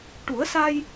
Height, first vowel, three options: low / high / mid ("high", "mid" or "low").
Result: high